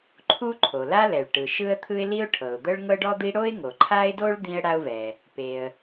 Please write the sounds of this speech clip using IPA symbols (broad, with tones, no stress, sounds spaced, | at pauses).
ǃʰ u˥ ǃʰ o˩ l a˥ l ɛ˩ ɭ ʈ ɯ˩ ʃ ɯ˥ ə̯ t̪ʰ ɯ˥ ɪ̯ l i˥ ʊ̯ ʈʰ ɤ˩ ʊ̯ d̪ ɤ˥ ɭ ŋ ɤ˥ ɖ ɔ˥ d̪ i˥ ɽ o˥ ɪ̯ ŋ o˩ ǃʰ a˥ ɪ̯ d o˥ ɭ d̪ ĩ˥ ə̯ ɽ a˥ ʊ̯ v ɛ˩ | p e˩ ə̯